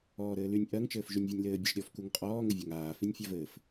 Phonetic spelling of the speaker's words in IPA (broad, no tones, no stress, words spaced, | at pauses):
ɔːɾɘːlynʲ ʔɜŋt͡ʃɘːf ʒynʲvʲɘnʲlɘː bʲɘʃɾʲɔfkuŋ qʼɔːŋɘvʲaŋ aːfinʲ fʲavɘːf